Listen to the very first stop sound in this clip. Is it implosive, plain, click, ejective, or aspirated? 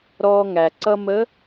click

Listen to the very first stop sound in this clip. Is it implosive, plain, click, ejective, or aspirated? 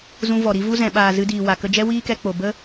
implosive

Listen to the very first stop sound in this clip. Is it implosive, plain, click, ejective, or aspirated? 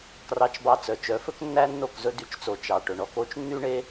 plain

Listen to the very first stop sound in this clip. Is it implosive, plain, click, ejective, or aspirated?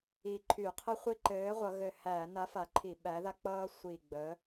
click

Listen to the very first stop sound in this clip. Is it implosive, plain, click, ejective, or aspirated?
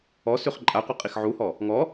click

